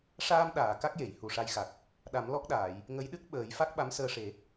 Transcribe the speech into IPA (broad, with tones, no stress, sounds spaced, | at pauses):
ʂ aː˧ m ɗ aː˨˩˨ k a˦˥ k̚ j e˨˩˨ j h u˨˩ ʂ a˧ j x a˨˩ k̚ | ɗ a˨˩˦ m l ɔ˦˥ k̚ ɗ aː˨˩˨ j | ŋ ə˧˥ j ɗ ɨ˦˥ k̚ ɓ əː˨˩˦ j f a˦˥ k̚ ɓ a˧˥ m s əː˧ ʂ e˨˩˦